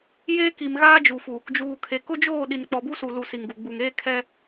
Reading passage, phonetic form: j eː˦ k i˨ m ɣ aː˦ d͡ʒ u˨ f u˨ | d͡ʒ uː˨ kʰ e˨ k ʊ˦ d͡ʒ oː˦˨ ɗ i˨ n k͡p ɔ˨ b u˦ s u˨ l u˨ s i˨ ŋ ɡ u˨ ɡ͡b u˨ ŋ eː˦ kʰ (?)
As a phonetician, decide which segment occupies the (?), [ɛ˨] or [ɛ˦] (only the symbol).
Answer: ɛ˦